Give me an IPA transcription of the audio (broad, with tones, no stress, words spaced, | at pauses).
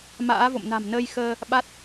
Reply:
ma̰ː˧˥vo̰˧˨m na̤˨˩m nəː˧j xəː˧ | ɓa˦˥t̚